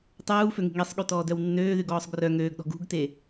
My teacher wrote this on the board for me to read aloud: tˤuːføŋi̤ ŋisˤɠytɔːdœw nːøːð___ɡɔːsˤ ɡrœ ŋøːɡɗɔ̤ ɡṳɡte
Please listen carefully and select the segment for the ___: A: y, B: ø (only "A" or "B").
A